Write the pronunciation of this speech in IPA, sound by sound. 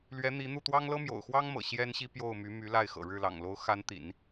l ɥ ɛ˧˥ n̪ i˧˥ n̪ u˥˩ t̪ w ɑ˥ ŋ l ɤ˥ m j o̰˨˩ ʊ̯ x w ɑ˥ ŋ m ɤ̰˨˩ ɕ j ɛ˥ n ɕ i˥ p j o˥˩ ʊ̯ m y˧˥ m y˧˥ l a˥˩ ɪ̯ x ɤ̰˨˩ ɻ ɻ̩˥˩ l ɑ̰˨˩ ŋ l o˧˥ ʊ̯ x a˧˥ n t̪ ḭ˨˩˦ n

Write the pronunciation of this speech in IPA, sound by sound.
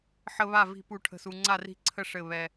ħ ə˦ β a˥˨ v i̤˦ p u˥˨ ʈʰ ə̤˥˨ s u˦ ŋ͡ǀ a˥˨ r i̤˥˨ ǀʰ ə˥˨ ʂ ɘ˥˨ β ɛ˦

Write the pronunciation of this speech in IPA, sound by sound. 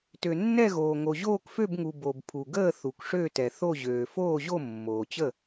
t ø˨ nː ɛ˥˨ ɣ oː˨ ŋ o˨ ʑ oː˥˨ k f ø˥˨ b ŋ u˨ b o˨ b pʰ u˨ ɡ əː˥˨ θ u˨ k ʂ ø˥˨ t ɛ˨ θ o˥˨ ʑ øː˨ f oː˥˨ ʑ o˥˨ mː oː˨ t͡ɕ ə˥˨

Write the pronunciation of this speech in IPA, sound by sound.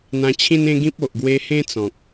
n̪ ã˧ t͡ɕʰ ĩ˦ n ẽ˦ ɡ ĩ˦ p̚ o˨ ʔ ɡ w e˧ h ẽ˦ t͡s ɔ̃˨ k̚

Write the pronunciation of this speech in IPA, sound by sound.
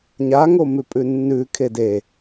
ɲ a ŋ o m ʉ pʼ ʉ nː ʉ kʰ e d e

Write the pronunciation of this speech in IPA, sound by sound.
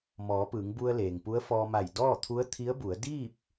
m ɔː˩˧ p ɯː˩˧ ŋ b u˧ ə̯ l eː˩ ŋ p u˧˥ ə̯ f ɔː˧ m a˧˩ j d ɔː˥˨ t̪ʰ u˧˥ ə̯ t̪ʰ i˧˥ ə̯ b u˩˧ ə̯ d iː˥˨ p̚

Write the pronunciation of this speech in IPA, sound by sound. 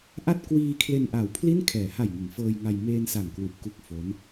ʔ a˥˩ t̚ k w iː˧ kʰ l e˧ n ʔ a˨˩ w pʰ l i˥˩ n kʰ ɛː˩˦ h a˨˩ j ŋ ɯ˩˦ ŋ f ɤː˧ j ŋ a˧ j m eː˧ n s a˨˩ ŋ k w u˨˩ ʔ k u˦˥ k̚ f o˦˥ n

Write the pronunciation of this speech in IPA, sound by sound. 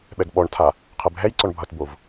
ɓ ɛ ɡ ɓ ɔ ɳ tʰ a | qʰ ɛ b ɦ ɛ j ǀ ɔ ɳ bʱ ʌ t b o v

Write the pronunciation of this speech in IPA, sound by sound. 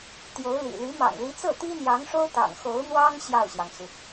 t̪ j o˧˥ ʊ̯ l ḭ˨˩ l y˧˥ m ɑ̰˨˩ ŋ l i˧˥ t͡s ɤ˥˩ t̪ i˥ n̪ j ɑ˧˥ ŋ ʂ o˥ ʊ̯ t̪ ɑ̰˨˩ ŋ x o˧˥ ʊ̯ n̪ w ɑ˥ ŋ ɕ j ɑ˥˩ ʊ̯ ɕ j ɑ˩ ŋ t͡s u˩

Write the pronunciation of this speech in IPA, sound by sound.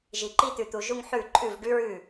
ʒ i˨ ǃ i˥ t̪ ʉ˨ t̪ u˨ ʒ u˥˧ ŋ ħ ʉ˥˩ ǃʼ ʉ˥˩ v ɖ ʉ˥ ɹ ʉ˥˩

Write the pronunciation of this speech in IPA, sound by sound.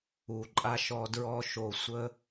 u˨ ǃʼ a˧ ʃ ɔ˧ d ɹ ɔ˦ ʃ o˧ sʷ ə˦

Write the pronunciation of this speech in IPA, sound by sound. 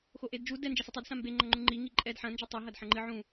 x o ʔ e d d͡ʒ u d ɛ n d͡ʒ ɛ s ɘ tˤ o d s ã m b e ŋ͡ǃ ɐ ŋ͡ǃ ũ ŋ͡ǃ i ŋ i ǃʼ ɛ d ħ ɐ̃ n d͡ʒ ɨ tˤ o ɦ ɐ d ħ ɐ̃ ŋ͡ǃ ɨ ʕ ũ

